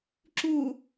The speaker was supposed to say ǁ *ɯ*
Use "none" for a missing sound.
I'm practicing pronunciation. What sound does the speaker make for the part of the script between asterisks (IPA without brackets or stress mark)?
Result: u